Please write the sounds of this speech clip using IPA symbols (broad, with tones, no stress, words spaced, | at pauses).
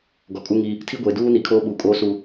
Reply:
ɡɔ˨kʼu˦ŋi˦ | tʰi˦ɡʷeː˨ duː˦ni˨kʰoː˦ ɓuː˨kʼoː˦su˨